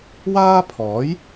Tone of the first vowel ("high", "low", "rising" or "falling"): high